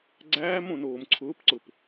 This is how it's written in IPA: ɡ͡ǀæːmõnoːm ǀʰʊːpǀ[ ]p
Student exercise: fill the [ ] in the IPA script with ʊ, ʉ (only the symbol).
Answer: ʊ